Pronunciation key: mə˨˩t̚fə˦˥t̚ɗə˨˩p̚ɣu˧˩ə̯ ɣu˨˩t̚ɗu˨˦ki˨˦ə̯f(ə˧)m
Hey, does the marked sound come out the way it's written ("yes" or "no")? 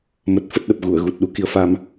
no